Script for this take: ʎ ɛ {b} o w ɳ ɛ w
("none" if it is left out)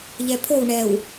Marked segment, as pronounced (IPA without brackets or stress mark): pʰ